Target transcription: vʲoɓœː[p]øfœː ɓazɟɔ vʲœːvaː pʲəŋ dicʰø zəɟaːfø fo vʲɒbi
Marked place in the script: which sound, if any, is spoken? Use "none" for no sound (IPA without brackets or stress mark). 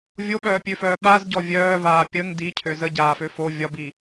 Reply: pʲ